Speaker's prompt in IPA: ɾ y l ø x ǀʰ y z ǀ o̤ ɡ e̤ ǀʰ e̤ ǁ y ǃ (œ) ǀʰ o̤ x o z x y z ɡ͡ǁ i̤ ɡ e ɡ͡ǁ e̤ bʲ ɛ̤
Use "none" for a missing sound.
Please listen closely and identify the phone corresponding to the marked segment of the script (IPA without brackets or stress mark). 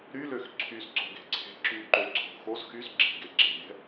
ø